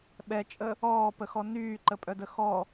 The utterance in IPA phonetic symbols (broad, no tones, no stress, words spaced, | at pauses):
ɓɛt͡ʃʼə | ɔːpəxɔ nyːǃəpʼœdə xɔ